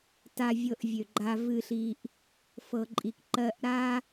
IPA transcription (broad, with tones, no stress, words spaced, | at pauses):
ta˧vʲɤ˧ʔ vʲø˩ɡ͡ǃa˧vɨ˧ɬi˧ʔ | fɤ˩ǃʼi˩k ǃɜ˧ʔɾa˥